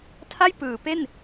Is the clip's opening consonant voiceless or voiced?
voiceless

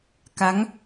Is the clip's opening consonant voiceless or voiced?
voiceless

